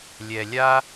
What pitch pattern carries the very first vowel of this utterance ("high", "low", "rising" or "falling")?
low